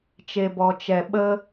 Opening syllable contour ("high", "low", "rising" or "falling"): low